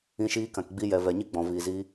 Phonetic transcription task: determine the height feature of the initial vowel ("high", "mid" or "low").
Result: high